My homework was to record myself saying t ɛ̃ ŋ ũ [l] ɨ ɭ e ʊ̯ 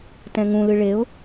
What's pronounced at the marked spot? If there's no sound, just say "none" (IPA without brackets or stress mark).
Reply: l